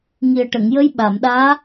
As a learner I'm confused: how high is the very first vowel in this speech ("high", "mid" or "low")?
high